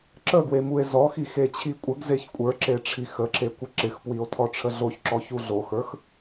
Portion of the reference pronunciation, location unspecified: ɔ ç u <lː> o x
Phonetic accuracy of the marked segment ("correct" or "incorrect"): incorrect